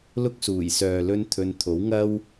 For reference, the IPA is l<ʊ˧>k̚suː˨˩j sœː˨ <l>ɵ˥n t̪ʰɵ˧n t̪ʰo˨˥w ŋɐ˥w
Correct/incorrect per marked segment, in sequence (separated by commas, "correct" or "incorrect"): incorrect, correct